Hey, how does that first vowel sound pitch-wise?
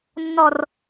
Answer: low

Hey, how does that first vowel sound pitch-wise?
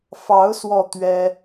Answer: rising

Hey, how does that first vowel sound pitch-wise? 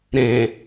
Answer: low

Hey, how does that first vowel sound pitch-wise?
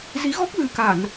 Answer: rising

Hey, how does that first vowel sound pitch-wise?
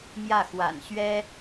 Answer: falling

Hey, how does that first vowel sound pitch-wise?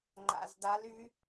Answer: low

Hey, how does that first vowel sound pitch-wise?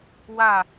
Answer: falling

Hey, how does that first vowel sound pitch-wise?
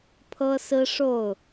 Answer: high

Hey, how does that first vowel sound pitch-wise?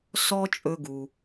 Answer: high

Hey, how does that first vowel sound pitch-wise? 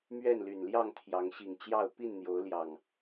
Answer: falling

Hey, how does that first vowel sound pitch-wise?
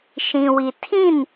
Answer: low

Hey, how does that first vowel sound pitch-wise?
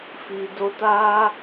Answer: low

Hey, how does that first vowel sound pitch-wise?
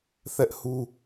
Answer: high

